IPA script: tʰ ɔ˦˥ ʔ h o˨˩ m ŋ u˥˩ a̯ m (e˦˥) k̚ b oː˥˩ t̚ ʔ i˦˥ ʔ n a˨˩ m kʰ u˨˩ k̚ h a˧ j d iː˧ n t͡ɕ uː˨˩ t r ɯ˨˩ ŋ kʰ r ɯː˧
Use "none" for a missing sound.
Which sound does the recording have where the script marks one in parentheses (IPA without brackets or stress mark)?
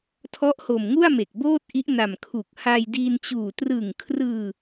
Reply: e˨˩